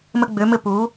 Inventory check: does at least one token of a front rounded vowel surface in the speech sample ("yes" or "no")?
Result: yes